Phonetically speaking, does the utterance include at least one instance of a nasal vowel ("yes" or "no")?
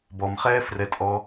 no